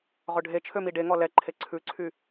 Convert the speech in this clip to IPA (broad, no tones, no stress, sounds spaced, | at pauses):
ʁ ɵ ɖʱ e t͡ʃʰ ø m i ɖ e ŋ ɔ l ɛ ǃʰ e ǀʰ ʉ ǀʰ y